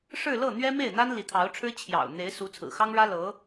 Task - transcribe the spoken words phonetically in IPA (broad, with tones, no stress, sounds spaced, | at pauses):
ʂ ɻ̩˥˧ l ɤ˥˩ n̪ ɥ ɛ˥ m e˥˩ ɪ̯ n̪ a˥ n l i˧˥ t̪ʰ ɑ˧˥ ʊ̯ ʈ͡ʂʰ ɻ̩˥ t͡ɕʰ j ɑ̰˨˩ ʊ̯ n̪ e˧˥ ɪ̯ s u˧˥ t͡sʰ ɹ̩˨˩ x ɑ˥ ŋ ɻ ä˥ l ɤ˧˥